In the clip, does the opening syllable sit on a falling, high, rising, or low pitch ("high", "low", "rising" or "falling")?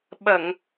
low